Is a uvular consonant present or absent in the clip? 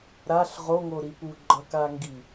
present